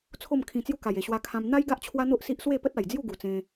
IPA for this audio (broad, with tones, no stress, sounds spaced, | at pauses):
t͡sʰ o˥˧ m kʰ ĩ˧ t͡s j u˦ k a˨˩ j e˨˩ ɕ w a˧ kʰ ã˧ m n̪ a˦ j ɡ a˦ ʔ t͡ɕʰ w a˦ n̪ o˦ ʔ s i˦ ʔ s w e˥˧ p ə˦ t̚ a˨˩ j d͡z j u˥˧ ɡ u˨˩ t͡s ẽ˧